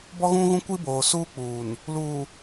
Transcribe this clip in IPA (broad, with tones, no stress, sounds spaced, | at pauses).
b ɔ˦ ɣ ũ˦ ɣ ũ˦ kʷ i˦ b oː˨ s uː˦ k͡p uː˨ n | l uː˨